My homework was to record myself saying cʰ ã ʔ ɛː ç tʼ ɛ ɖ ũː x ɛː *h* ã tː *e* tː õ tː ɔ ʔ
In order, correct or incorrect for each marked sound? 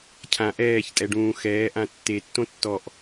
incorrect: ʔ, correct

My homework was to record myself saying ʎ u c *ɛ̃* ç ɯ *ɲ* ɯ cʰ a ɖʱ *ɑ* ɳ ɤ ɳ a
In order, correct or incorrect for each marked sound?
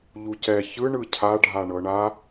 incorrect: ɛ, incorrect: ɳ, incorrect: a

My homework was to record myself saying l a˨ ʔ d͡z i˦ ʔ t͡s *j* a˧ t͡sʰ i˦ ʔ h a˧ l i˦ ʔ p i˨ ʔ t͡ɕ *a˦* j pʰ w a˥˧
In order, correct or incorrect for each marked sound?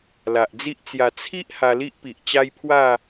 correct, correct

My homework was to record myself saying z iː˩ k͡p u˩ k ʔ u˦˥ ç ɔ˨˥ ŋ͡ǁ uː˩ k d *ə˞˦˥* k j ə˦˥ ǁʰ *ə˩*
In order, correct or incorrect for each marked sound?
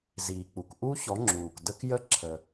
incorrect: ə˦˥, correct

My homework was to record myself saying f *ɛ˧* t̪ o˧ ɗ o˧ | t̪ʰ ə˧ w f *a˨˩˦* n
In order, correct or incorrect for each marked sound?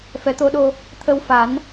incorrect: ɛ˨˩˦, correct

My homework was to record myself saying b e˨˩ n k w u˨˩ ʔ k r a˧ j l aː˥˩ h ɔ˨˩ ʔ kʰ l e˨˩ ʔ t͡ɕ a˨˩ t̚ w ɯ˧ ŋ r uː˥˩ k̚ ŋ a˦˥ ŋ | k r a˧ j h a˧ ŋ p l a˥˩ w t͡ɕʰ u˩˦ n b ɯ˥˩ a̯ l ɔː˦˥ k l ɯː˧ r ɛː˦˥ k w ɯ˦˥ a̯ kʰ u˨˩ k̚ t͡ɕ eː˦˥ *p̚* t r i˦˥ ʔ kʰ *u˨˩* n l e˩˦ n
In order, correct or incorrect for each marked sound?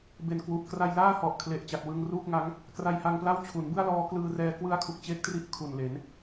incorrect: k̚, correct

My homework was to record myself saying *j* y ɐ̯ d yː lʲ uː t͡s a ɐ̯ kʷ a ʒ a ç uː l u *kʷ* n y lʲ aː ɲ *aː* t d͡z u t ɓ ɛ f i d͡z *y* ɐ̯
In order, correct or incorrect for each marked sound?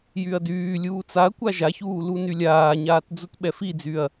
correct, incorrect: none, correct, correct

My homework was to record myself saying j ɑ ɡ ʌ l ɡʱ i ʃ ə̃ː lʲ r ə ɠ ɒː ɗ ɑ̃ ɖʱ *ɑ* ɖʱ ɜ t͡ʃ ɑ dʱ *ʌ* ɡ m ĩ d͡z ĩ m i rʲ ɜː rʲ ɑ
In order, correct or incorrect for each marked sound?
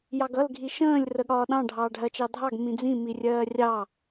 incorrect: ɑː, incorrect: ɑ

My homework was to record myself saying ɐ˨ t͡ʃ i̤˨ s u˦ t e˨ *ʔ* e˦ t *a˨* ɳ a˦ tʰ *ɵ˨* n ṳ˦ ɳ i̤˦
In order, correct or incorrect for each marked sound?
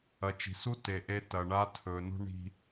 correct, incorrect: ɐ˨, correct

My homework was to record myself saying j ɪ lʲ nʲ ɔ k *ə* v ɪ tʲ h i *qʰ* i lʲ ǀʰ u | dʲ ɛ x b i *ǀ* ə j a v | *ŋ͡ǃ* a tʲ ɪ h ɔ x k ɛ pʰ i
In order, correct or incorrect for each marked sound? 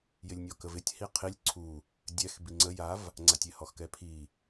correct, correct, incorrect: ŋ͡ǀ, incorrect: ŋ͡ǀ

